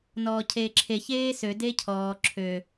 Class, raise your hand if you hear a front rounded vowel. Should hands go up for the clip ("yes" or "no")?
yes